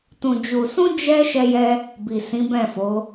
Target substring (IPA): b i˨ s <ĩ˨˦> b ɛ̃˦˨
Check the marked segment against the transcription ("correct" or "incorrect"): correct